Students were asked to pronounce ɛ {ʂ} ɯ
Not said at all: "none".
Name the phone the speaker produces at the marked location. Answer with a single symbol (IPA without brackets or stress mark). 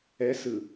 s